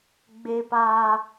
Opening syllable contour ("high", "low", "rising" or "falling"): high